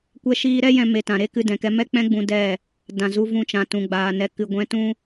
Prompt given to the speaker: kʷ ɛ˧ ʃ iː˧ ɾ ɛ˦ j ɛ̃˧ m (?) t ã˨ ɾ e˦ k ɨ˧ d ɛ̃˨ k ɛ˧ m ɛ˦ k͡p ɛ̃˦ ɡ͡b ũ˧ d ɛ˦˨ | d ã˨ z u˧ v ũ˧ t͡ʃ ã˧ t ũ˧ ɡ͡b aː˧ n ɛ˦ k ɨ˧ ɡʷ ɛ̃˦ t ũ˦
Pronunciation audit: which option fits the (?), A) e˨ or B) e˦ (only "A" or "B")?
A